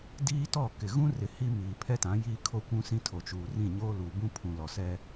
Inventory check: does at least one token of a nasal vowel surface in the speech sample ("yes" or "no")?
yes